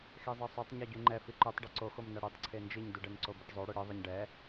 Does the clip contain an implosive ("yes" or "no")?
no